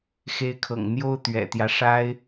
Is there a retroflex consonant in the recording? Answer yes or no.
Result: yes